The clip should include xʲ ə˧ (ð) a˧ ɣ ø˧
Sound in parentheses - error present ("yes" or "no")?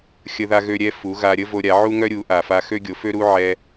no